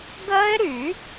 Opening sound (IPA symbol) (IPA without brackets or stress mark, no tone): ɡ